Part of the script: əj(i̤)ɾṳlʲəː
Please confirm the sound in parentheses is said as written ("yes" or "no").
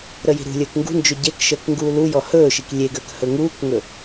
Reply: yes